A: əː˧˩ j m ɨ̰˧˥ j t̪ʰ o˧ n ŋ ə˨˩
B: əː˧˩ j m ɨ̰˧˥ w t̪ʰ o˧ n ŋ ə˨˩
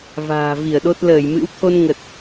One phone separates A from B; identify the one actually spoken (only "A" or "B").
B